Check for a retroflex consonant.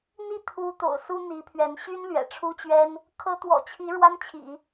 present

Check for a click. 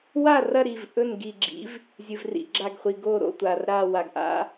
present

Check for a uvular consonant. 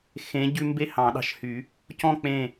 absent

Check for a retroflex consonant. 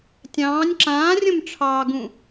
present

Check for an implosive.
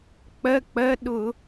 present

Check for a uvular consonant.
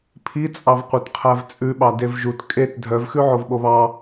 present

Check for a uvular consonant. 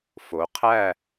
present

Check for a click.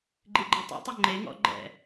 present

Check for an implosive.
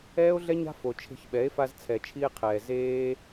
present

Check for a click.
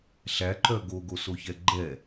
present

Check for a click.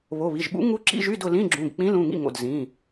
present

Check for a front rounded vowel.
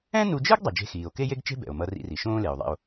absent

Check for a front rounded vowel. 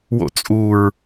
absent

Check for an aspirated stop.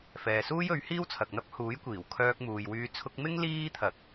present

